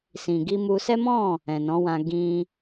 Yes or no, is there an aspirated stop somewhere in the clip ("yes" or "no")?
no